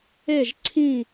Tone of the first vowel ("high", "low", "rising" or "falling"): falling